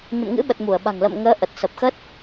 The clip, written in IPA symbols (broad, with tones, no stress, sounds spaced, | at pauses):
ɲ ə̰˧˨ m ŋ ɨ̰˧˥ ɓ ə˨˩ t̚ m u˧˩ ə̯ ɓ a̤˨˩ ŋ l ə̰˧˨ m ŋ əː˨˦ ʔ ə˨˩ t̚ s ə˨˩ p̚ x ə˦˥ t̚